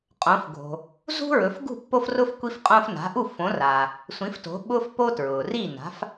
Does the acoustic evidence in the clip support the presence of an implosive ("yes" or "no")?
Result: yes